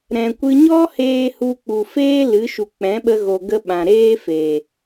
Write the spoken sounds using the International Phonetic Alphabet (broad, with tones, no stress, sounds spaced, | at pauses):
ɾ ɛ̃˧ kʷ ɨ˦ ɲ ɔ˦ h eː˧ h u˧ k͡p u˨ f eː˦ l ɨ˨˦ ʃ u˨ k͡p ɛ̃˨˦ ɓ ə˧ ɣ o˨ ɡ ə˦ ɓ ã˨ ɾ eː˦ f e˨